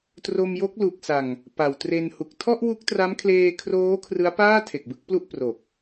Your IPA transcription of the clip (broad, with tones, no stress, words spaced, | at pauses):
tro˧mjo˦˥k̚lu˨˩k̚sa˨˩ŋ | pa˨˩wtre˧n hu˨˩k̚ tʰɔ˥˩ʔwu˦˥k̚tra˦˥m kʰleː˧kʰroː˦˥ kʰrɯ˦˥a̯paː˥˩tʰe˨˩k̚ bɯ˦˥k̚plu˥˩ʔ pro˨˩k̚